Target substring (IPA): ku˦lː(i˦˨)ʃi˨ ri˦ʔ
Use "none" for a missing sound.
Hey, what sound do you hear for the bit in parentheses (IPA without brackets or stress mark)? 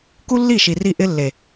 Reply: i˦˨